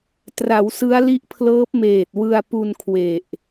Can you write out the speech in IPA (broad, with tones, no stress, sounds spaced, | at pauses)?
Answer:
t r a˩˦ w s ɯ˦˥ a̯ l i˦˥ ʔ pʰ l ɤː˦˥ p̚ m eː˨˩ t̚ w ɯ˧ a̯ p u˧ n kʰ w e˨˩ ʔ